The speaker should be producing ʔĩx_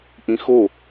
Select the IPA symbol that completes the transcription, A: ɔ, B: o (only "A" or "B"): B